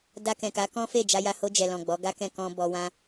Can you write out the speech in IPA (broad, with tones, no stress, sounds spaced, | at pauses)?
d a˧ k ɛ̃˨ k a˨˦ k ɔ̃˦ f e˦˨ d͡ʒ a˧ j a˧ h o˧ d͡ʒ ɛ˨ l ɔ̃˨ ɡ͡b ɔ˨˦ ɡ a˦ k ɛ̃˦˨ k ɔ̃˧ b ɔ˧ w ã˦